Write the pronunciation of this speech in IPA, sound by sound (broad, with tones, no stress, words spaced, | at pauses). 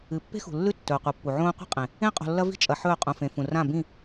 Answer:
ɨ˨ pːe̤˦xṳ˨lːʉ˦ tːɵː˨qʷɐ˨˦pːu˨ ʕõː˦ qʷe̤˦qʼẽ˨ | ẽ˦qʼo̤˨lːɐ˦vi̤˦ t͡ʃʼɐ˨ ħɵː˦˨qʼũ˨fẽ˨ fũ˨rã˦˨ bĩ˦˨